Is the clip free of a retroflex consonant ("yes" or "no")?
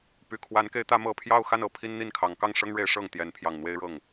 no